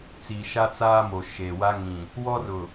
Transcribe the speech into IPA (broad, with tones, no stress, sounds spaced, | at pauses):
t͡s iː˨ ʃ a˦ t͡s aː˦ m o˨ ʃ eː˨ w a˦ ŋ ĩ˨ | w ɔ˦ r ʊ˨